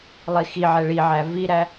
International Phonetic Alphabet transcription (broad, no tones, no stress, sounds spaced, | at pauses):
lˠ i x i ʕ ɛ ɭ i ʕ æ v i ɾ æ